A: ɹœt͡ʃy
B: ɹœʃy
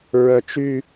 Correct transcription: A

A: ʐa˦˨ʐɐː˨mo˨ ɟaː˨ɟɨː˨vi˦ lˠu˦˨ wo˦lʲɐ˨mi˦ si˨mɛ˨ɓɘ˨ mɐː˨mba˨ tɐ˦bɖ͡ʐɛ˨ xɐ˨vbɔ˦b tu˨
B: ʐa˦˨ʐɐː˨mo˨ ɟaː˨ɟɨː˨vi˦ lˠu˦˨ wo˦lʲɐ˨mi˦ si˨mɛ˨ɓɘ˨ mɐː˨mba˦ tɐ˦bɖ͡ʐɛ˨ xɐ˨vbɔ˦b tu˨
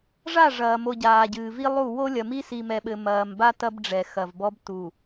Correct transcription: B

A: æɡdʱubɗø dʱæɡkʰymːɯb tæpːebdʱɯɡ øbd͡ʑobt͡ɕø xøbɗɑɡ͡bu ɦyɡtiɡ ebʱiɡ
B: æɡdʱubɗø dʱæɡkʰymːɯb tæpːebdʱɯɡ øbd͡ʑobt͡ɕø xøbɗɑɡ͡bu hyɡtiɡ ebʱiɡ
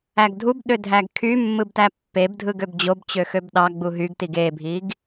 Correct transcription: A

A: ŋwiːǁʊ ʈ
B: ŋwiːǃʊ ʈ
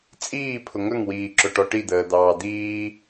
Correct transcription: A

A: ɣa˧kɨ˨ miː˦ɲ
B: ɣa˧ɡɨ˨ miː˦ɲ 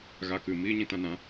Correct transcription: A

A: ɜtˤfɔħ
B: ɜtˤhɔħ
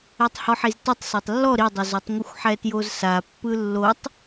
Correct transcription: B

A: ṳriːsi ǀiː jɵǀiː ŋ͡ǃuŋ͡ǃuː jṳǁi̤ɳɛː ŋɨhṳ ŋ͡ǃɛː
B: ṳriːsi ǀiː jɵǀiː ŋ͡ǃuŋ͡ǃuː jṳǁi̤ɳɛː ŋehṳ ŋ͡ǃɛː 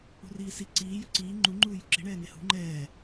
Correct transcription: B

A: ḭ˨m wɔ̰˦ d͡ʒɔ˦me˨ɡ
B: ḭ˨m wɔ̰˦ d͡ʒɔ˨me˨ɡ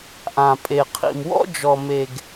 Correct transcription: B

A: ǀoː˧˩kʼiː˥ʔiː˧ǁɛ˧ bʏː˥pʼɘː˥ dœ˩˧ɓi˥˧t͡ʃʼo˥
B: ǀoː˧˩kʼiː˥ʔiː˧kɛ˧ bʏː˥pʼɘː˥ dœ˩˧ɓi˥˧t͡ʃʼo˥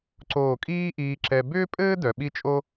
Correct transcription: A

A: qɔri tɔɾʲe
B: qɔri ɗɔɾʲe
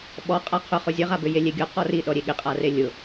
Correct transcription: B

